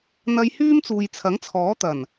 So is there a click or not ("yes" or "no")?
no